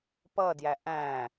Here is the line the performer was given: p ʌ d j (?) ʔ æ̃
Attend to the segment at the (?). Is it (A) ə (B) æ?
B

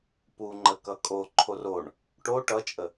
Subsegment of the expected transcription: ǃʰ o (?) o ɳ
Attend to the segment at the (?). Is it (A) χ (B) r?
B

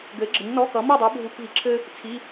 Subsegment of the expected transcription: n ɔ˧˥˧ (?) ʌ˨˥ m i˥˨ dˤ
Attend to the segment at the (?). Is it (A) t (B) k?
B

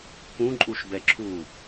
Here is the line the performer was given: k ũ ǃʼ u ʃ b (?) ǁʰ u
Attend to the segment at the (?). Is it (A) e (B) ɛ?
B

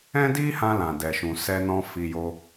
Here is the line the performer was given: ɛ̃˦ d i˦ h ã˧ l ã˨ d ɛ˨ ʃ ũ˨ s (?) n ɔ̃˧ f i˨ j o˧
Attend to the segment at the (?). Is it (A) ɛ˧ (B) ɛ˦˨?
A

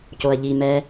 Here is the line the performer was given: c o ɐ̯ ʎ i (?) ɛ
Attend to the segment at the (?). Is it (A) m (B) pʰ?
A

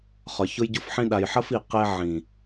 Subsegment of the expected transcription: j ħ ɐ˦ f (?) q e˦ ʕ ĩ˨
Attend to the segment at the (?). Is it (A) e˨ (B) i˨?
B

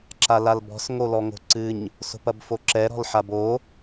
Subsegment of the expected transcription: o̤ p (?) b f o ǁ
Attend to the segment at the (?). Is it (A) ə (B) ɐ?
B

